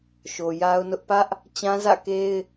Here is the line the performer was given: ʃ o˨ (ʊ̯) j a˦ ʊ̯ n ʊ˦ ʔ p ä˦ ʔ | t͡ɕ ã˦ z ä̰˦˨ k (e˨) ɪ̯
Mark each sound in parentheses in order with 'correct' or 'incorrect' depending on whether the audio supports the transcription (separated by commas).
incorrect, incorrect